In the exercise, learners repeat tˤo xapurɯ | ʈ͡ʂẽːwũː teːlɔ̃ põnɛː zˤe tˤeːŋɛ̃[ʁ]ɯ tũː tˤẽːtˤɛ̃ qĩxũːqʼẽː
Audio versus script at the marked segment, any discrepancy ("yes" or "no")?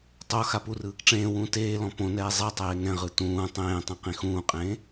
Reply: no